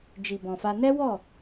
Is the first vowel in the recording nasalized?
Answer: no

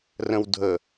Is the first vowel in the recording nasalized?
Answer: yes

